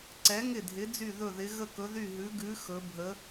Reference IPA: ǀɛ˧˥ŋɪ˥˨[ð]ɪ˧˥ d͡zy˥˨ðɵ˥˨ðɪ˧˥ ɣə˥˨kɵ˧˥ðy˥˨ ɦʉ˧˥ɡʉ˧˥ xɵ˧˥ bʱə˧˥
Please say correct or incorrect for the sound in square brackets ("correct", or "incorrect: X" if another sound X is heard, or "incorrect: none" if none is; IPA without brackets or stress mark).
incorrect: dʱ